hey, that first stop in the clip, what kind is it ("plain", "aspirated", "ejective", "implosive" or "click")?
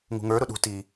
implosive